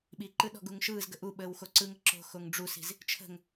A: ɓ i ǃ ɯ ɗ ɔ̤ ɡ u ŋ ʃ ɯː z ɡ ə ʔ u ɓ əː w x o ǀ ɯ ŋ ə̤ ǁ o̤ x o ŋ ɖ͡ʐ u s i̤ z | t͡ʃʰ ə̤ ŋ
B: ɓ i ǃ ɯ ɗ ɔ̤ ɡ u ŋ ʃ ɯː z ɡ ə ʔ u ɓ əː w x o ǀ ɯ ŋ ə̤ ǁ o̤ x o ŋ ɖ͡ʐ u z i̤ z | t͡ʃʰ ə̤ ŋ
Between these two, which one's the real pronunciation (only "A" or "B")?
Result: A